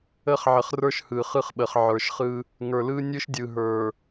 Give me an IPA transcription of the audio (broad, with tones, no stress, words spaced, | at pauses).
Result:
ə˦χ ʕə˨χ rə˞˦ʃhɯ˨χɯ˦χɓə˨χ ʕə˞˨ʃχɯ˦ | ŋə˞˨lɯ˦ nʲɯ˦ʃdʲɯ˨ɦə˞˨